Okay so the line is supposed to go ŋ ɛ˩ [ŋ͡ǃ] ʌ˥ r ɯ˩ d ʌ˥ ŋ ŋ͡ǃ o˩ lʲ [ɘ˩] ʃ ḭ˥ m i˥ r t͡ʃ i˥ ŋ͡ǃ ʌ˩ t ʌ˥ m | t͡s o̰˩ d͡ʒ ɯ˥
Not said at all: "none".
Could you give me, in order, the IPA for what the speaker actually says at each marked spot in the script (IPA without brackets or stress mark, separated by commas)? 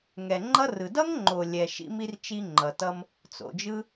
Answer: ŋ͡ǃ, ɛ˩